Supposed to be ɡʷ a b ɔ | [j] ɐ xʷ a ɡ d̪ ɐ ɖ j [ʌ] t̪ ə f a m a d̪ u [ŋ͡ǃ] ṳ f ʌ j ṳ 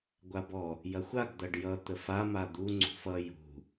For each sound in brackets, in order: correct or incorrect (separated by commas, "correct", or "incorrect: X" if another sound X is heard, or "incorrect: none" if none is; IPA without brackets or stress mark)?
correct, correct, incorrect: ŋ͡ǀ